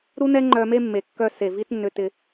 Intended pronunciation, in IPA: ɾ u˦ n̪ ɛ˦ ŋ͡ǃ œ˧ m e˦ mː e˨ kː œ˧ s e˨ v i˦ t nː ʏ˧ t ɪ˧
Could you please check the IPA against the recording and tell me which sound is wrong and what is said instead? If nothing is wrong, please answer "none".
none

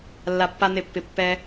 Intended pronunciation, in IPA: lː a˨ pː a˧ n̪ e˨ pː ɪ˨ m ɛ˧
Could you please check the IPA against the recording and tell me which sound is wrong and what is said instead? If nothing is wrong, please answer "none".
m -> pː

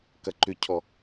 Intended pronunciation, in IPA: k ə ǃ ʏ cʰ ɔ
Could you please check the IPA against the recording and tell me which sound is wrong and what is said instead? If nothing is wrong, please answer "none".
ə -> ɐ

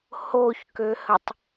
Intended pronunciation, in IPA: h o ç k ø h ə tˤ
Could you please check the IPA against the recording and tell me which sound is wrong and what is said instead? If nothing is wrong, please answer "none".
none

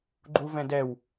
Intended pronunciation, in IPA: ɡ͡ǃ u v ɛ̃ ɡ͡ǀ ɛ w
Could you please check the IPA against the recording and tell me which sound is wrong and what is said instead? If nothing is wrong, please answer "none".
ɡ͡ǀ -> d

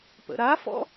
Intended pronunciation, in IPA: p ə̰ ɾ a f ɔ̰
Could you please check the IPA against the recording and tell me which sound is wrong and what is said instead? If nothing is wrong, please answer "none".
none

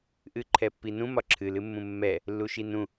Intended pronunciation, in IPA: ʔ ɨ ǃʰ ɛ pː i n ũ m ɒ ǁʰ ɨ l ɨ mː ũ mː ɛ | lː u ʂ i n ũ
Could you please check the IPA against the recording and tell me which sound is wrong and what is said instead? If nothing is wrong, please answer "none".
ʂ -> ʃ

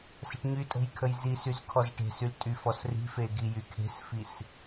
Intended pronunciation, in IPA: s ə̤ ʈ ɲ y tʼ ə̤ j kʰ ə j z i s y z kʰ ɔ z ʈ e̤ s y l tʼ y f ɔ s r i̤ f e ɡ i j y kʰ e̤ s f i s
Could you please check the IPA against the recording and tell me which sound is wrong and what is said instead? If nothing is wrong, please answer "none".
none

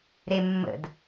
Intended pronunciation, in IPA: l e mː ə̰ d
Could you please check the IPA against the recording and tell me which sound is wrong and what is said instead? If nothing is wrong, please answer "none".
l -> ɾ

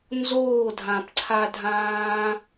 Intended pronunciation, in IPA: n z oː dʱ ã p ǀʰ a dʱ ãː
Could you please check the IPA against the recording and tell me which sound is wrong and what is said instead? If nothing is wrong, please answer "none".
none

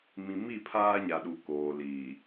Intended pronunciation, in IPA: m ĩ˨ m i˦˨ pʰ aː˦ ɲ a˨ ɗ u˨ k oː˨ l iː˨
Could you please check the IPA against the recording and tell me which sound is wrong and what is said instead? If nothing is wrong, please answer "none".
none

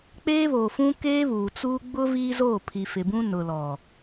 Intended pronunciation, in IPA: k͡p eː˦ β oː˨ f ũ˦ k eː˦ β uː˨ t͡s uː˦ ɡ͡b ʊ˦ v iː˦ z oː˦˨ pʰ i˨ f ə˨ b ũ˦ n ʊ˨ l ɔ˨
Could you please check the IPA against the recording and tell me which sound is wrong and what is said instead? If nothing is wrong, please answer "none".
ə˨ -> ɪ˨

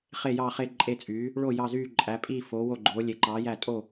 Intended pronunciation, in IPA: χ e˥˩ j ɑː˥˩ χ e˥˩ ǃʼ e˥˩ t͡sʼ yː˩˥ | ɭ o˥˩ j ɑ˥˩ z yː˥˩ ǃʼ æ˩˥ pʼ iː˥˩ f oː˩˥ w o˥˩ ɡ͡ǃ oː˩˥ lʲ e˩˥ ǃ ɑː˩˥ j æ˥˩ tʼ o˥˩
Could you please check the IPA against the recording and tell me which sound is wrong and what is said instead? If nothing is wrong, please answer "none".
none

